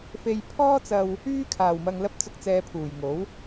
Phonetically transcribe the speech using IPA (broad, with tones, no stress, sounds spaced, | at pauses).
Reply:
f e˧ j pʰ ɔː˥ t͡s ɐ˧ w | yː˧ kʰ aː˨˩ w m ɐ˨ ŋ l ɐ˨˥ p̚ t͡s ʊ˨ k̚ t͡s ɛː˨ pʰ uː˨˩ j ŋ o˨˥ w